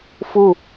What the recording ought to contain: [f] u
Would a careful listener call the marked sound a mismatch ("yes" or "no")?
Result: no